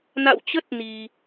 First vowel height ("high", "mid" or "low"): low